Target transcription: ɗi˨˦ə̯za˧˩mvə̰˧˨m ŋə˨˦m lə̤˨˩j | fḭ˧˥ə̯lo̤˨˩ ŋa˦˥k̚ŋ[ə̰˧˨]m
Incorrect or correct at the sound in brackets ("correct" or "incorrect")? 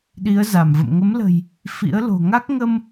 incorrect